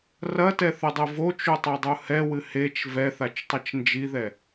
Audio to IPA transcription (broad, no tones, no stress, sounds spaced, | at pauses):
r ɐ t ɛ θ ɨ dˤ ɨ v o t͡ʃ u tˤ e dˤ u h ɛ w ɨ h e t͡ʃ v ɛ θ a t͡ʃ tˤ ɐ t͡ʃ n d͡ʒ i ð ɛ